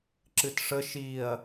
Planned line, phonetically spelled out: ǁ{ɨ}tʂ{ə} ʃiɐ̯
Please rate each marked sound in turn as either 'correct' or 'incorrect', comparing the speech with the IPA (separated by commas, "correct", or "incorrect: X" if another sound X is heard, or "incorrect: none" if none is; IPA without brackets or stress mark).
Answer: correct, correct